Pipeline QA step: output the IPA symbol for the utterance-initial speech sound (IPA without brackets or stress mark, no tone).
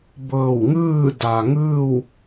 b